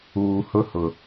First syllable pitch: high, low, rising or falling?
low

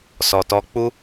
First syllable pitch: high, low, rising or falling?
low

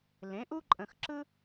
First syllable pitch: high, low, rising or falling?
rising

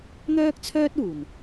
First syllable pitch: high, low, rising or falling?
high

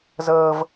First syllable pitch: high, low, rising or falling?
high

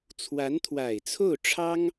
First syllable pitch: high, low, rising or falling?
rising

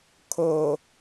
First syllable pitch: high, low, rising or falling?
low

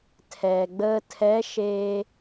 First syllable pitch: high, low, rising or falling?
low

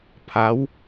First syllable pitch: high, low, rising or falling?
rising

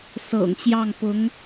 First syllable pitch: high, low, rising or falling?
low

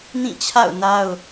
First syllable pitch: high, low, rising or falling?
falling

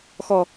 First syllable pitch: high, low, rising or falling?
low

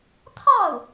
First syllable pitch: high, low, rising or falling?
falling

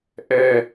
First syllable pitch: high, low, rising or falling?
low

